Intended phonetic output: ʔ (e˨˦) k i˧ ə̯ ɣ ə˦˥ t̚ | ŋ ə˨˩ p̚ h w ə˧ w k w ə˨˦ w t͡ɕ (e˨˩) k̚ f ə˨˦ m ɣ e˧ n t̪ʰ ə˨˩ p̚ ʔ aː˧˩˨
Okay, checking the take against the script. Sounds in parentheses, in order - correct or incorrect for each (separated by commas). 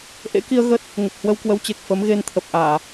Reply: incorrect, correct